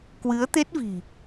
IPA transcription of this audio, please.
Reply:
k w ɨ˨˦ ə̯ t̪ e˦˥ t̚ v i̤˨˩

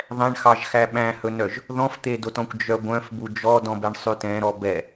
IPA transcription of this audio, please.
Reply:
ðˤ ɛ̃ ɳ x ɑ ʒ x æ ɓ æ̃ h ɵ n œ ʒ | ð ɔ̃ f t̪ e d o t ɔ̃ kʷ d͡ʒ œ ɡʷ œ̃ f b u d͡ʒ ɔ d ɔ̃ b ɛ ɳ sˤ ʉ t ɛ̃ ɾ ɔ b ɛ

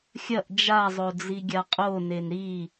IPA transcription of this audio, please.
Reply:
xʲ ɐ ʔ d͡ʒ a zˤ o d͡z i ɡʲ a qʼ o n e n ɾ i

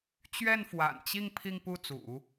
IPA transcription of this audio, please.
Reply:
t͡ɕ ɥ ɛ˥˩ n f w a̰˨˩ n t͡ɕ i˥˧ ŋ pʰ i˥˧ ŋ p u˥˩ t͡s ṵ˨˩˦

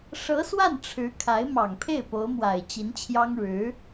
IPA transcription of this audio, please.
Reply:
ʂ ɤ˧˥ s w a˥˩ n ʈ͡ʂʰ ɻ̩˧˥ kʰ a˧˥ ɪ̯ m ɑ˨˩ ŋ pʰ e˥˩ ɪ̯ p o˧˥ ʊ̯ m w a˨˩ ɪ̯ t͡ɕ i˧˥ n t͡ɕʰ j ɑ˥ ŋ ɻ ɻ̩˧˥

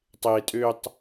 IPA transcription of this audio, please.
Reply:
tˤ e tʼ ø tˤ

